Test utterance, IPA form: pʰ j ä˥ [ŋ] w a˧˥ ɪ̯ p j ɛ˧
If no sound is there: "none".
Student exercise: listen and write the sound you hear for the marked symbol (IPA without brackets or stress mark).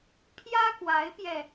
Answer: k